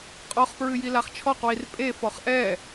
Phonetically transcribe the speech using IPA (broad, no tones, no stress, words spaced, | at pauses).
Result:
qʼɔχpɹɨjilaχ t͡ʃʰɔqwir pʼefɔχ ʔɛ